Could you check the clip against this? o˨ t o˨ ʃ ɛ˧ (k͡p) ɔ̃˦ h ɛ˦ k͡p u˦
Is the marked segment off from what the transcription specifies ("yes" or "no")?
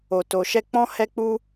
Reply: no